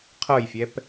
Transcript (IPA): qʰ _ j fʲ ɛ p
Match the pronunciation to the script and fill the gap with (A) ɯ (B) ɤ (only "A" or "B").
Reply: B